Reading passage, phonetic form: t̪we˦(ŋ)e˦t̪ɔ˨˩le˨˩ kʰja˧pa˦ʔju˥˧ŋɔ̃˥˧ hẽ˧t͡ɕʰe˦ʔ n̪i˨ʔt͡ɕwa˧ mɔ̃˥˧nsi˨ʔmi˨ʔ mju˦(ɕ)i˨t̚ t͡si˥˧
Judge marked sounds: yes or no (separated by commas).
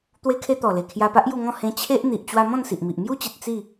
no, no